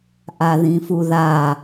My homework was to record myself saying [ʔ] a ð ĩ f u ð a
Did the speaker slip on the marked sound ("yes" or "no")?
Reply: no